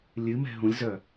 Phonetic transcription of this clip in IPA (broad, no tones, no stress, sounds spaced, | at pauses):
lʲ ɨ m ɛ̤ ɦ ũ lʲ z œ